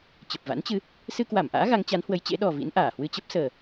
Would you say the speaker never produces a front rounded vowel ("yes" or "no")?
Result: yes